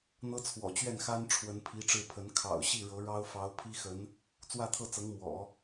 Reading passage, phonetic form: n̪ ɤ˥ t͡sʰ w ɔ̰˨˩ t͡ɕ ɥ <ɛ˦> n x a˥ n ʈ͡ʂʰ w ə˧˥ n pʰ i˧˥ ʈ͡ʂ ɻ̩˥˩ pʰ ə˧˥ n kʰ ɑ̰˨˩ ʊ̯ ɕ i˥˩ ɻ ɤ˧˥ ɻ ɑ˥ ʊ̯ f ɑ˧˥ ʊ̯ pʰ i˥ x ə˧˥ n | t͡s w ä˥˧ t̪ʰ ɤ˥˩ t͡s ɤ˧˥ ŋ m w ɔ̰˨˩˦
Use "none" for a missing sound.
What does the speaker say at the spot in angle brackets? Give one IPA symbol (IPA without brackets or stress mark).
ɛ˥˩